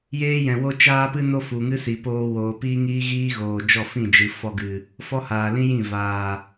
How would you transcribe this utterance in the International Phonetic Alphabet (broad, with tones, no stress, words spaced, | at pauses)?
jeː˦jɛ̃˨ wo˦t͡ʃaː˦pɨ˦no˦ fu˨ŋɨ˦si˨ poː˧woː˨piː˦ ŋiː˦ɣiː˦ɣoː˨ d͡ʒɔ˦˨fĩ˦˨d͡ʒɨ˨ fɔ˧ɡɨ˨ | fɔ˦haː˨lĩ˦jĩ˦˨ vaː˨